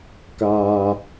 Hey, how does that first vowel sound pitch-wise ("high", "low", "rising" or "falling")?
low